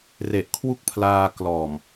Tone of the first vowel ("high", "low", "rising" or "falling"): low